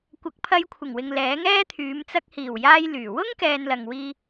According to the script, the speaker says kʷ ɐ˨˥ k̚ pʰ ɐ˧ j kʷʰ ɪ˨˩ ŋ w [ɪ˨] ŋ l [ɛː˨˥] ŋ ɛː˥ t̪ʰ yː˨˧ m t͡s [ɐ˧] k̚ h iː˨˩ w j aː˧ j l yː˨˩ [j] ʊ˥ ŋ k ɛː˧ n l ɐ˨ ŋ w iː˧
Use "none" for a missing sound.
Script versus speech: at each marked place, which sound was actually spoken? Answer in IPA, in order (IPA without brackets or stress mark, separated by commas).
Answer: ɪ˨, ɛː˨˥, ɐ˧, w